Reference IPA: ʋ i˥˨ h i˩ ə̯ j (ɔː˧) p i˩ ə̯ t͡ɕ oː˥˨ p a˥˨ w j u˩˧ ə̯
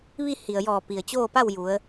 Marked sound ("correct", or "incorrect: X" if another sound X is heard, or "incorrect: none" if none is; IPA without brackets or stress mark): incorrect: ɔː˧˩